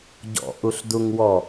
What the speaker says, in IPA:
ɟɔ̰ʔuɬduŋwɔ

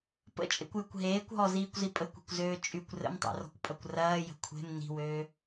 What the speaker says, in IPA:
pə̰t͡ʃʼḛkʷjəkʷ ɦeːkʷɦɔziːkʷzi pʼəkʷe̤kʷzøː t͡ʃʼykʷ rə̰mtˤḛrɔ̤kʷpʼɐkʷ rɐːjə̤ kʷʰe̤m ni̤wøː

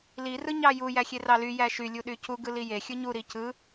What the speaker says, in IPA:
li rɯɲɑju jæxʲerɑly jæʃy lʲuɗycu ɡɯlije xʲɯɲu ɾicɯ

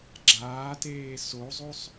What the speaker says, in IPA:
ɡ͡ǁaːteː sozˤosˤ

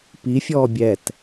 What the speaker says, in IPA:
pifʲɔː bʲɛt

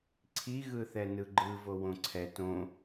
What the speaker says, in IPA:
ǀʰi ɣɯθɛnɯɡ͡ǃɯ vowõǀʰɛ tõ

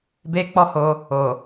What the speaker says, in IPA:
be˦k͡pɔ˦ho˧ | o˨

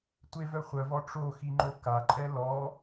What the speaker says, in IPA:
tʷevœ χʷœvɔ ʈ͡ʂoxiŋ͡ǃo kaǃʼɛ lɔ

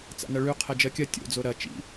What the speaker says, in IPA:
t͡sa̰nɐɭʉ qʰɛd͡ʒɜkʲɐ tʲo̰d͡zo ɾɐ t͡ʃḭ

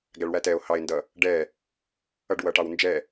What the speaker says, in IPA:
ɡæɭwætɛo̯ hɑe̯ndʌ | ɖɛ | ʌɖwʌʈɑw nd͡ʒɛ

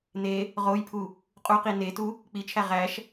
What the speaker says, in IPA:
ne | ʁojpʰu | qʼu qinetu | k͡pit͡ʃʰæ ʁæʃ

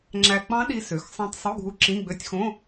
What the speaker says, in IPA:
ŋ͡ǁæ˧ k͡pɑ̃˦˥ɗi˧ sø˩˥xsˤɑ̃˧tˤ sˤu˧˥˧ɡʱu˧ ǁĩ˧˥˧ɡ͡bø˧˥˧tʲxõ˧˥˧

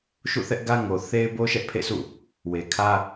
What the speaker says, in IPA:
ʃṵ˦˨θɛ˦ʔɡä˦ ŋo˨ θe˦ɪ̯bo˦ ʃɛ˦ʔpʰḛ˦˨sʰṵ˦˨ | we˨kʰä˦

